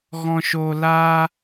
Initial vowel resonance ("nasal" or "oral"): nasal